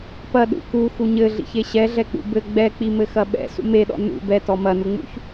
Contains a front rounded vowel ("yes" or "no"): no